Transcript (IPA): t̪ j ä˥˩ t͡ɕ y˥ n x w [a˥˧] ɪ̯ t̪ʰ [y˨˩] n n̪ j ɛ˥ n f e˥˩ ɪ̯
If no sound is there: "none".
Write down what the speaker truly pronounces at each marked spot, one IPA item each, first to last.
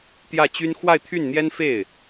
a˥˧, y˥˩

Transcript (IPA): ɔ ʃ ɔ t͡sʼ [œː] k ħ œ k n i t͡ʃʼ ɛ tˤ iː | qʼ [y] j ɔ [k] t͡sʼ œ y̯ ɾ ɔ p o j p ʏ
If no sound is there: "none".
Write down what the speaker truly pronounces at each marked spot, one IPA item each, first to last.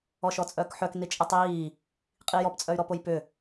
œː, i, p

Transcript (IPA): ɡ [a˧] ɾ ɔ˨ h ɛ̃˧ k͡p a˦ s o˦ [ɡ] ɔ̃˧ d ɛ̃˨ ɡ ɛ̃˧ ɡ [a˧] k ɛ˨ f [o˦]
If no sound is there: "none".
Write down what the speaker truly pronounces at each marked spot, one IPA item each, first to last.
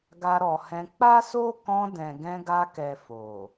a˧, k, a˧, o˨

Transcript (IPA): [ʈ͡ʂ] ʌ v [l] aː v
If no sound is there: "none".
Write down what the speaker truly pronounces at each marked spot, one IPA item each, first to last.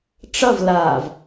ʈ͡ʂ, l

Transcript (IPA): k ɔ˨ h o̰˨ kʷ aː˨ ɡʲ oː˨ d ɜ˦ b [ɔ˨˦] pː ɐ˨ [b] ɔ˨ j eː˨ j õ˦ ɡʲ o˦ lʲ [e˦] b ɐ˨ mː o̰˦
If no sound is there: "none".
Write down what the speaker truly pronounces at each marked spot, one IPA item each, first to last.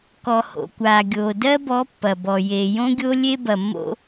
ɔ˨˦, b, e˦

